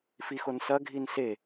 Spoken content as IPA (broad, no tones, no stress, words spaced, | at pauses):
fixonsɐ ɡʱinse